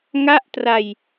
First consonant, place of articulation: velar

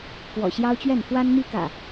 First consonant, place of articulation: velar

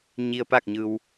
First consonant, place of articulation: palatal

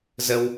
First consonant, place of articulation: alveolar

